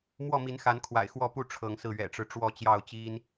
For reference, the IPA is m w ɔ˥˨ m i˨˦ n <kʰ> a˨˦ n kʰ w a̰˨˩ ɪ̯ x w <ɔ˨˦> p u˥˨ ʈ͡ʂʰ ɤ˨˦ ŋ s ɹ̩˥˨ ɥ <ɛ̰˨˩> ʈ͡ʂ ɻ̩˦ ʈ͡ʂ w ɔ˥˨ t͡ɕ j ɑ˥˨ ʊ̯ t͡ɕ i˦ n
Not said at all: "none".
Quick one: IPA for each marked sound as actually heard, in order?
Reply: x, ɔ˥˨, ɛ̰˨˩

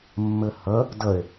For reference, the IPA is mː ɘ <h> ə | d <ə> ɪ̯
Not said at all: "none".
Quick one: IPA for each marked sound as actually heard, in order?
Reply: h, ə

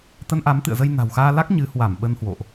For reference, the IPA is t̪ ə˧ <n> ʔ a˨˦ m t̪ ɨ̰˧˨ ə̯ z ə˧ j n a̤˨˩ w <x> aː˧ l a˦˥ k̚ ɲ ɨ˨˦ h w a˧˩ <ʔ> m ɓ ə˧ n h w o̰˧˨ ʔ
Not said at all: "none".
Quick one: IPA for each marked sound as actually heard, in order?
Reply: n, x, none

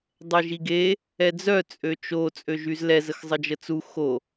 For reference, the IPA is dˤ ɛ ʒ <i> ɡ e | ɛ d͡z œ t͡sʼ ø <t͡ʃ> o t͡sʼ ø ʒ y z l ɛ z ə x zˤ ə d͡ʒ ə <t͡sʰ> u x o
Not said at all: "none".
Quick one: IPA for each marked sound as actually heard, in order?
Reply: i, t͡ʃ, t͡s

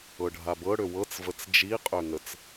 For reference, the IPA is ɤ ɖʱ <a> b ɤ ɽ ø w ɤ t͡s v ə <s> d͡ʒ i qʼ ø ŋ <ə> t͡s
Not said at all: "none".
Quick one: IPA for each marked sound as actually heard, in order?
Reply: a, t͡s, ə

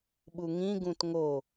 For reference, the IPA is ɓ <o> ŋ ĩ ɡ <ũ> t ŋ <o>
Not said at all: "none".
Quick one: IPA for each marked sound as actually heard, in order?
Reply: u, ũ, o

